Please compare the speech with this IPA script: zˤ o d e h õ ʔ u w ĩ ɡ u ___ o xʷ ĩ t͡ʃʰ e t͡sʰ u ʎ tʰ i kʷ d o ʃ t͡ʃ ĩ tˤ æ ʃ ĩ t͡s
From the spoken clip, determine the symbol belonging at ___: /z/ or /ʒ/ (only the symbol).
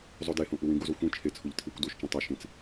z